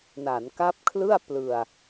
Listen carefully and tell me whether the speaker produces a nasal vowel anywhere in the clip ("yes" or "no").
no